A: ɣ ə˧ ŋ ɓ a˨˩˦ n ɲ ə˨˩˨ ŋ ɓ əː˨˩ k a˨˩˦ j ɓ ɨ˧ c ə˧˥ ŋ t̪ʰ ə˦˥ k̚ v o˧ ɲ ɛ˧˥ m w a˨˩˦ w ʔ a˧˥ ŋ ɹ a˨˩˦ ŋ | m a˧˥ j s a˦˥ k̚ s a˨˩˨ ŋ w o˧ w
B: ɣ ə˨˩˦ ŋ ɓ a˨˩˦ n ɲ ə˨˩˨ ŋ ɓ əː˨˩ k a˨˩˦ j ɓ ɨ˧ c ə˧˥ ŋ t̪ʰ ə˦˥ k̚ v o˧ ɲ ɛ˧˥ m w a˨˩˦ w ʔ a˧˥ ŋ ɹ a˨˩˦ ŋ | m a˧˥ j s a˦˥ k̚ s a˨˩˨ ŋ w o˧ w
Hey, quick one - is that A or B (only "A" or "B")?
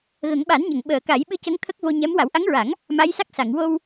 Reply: B